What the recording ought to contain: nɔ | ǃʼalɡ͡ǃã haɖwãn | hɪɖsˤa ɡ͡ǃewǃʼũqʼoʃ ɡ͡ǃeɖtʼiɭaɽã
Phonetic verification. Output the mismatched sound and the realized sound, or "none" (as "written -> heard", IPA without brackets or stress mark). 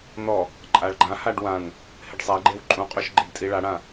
l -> ɭ